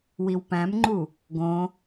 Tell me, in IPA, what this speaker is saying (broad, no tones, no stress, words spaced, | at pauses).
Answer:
wiwpæ̃mŋ͡ǃu | ɡõ